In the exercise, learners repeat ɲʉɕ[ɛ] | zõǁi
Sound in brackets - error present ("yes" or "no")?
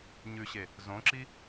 yes